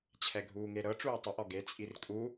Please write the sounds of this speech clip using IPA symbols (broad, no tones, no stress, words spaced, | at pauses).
t͡ɕʰɛɡʱuːŋeɾɤ ʈ͡ʂuːtˤuʔ ɔɡe t͡sʼirkʼu